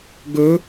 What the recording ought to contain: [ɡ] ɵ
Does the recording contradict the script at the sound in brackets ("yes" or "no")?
no